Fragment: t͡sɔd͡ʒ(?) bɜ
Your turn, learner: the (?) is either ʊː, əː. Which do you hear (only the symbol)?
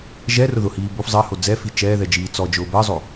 ʊː